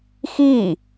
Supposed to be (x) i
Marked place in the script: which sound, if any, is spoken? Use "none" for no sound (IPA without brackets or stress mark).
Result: x